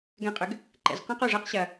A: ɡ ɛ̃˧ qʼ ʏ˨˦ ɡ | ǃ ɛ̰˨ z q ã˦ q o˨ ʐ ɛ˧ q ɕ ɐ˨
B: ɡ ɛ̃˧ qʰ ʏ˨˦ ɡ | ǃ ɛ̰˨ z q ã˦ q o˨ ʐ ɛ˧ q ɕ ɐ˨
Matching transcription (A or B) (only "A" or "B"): A